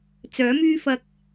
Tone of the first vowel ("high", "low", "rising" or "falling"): rising